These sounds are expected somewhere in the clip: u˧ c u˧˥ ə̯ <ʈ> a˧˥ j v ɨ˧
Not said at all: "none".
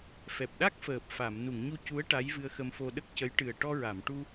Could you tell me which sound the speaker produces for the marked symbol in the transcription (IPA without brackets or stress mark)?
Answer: ʈ